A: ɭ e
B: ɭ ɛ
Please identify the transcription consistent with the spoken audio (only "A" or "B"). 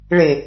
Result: A